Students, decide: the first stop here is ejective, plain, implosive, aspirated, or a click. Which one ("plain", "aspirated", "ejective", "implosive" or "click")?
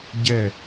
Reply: plain